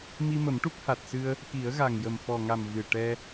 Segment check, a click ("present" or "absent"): absent